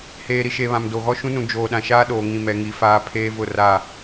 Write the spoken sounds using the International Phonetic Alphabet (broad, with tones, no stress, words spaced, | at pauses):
heː˨ɾi˨ʃe˨ βã˨mdo˨ɣɔ˦ ʃũ˦nũ˨ d͡ʒoː˨ɗã˨ʃaː˦ ɗoː˨ŋĩ˨mɛ˨ ŋi˨faː˦ pʰeː˦vʊ˦˨ ra˦˨